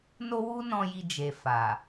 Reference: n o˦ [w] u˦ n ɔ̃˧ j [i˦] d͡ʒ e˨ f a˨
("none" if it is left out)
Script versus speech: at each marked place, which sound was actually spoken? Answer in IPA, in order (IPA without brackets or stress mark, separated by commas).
w, i˧